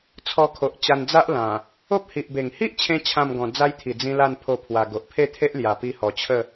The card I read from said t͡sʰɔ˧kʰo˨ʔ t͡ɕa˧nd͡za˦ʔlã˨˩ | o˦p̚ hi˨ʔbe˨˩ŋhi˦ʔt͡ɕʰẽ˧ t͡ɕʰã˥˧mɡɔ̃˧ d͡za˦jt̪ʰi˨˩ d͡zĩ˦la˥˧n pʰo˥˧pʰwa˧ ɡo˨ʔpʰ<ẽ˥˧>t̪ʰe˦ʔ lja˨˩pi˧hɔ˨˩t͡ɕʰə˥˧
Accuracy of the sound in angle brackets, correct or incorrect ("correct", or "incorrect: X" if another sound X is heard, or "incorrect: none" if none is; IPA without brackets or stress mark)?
incorrect: e˥˧